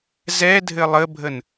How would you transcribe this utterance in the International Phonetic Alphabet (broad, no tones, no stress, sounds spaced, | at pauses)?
z ɛ dʱ ɘ lˠ ə bʱ ə n